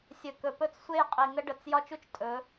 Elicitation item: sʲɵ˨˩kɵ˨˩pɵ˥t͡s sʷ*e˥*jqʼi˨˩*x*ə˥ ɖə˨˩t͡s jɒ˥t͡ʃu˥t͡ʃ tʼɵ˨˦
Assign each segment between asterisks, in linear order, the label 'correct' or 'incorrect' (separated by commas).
correct, incorrect